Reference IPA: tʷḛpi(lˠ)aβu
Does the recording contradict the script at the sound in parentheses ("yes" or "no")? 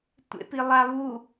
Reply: no